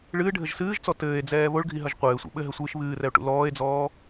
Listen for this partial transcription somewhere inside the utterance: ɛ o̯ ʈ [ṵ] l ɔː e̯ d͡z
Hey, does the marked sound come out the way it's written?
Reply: yes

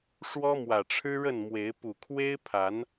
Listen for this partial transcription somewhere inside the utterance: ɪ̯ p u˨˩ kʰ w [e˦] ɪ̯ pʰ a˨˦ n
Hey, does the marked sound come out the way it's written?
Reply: yes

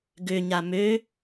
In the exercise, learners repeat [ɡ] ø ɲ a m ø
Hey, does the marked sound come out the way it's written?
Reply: yes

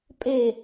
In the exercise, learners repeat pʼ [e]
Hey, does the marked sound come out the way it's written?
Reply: yes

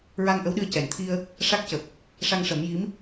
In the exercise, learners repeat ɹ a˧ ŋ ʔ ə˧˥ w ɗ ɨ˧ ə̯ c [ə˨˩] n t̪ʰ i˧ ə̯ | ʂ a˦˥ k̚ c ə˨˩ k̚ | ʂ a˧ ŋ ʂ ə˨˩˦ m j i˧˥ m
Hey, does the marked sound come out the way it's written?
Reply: no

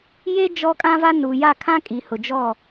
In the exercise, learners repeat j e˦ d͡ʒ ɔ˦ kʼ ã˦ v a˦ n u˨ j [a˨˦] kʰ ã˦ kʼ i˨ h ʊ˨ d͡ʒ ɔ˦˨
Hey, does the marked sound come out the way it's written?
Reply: no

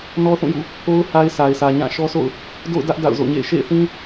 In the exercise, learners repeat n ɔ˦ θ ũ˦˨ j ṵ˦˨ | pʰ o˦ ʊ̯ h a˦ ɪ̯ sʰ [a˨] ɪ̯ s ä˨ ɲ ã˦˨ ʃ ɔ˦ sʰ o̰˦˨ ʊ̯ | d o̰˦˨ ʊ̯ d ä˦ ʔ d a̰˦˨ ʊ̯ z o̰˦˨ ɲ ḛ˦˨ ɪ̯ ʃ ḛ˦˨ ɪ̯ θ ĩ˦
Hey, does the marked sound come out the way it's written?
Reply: yes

